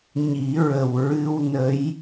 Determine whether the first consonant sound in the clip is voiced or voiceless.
voiced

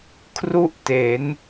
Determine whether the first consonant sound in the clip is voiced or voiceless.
voiceless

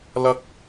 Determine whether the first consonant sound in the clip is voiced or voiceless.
voiced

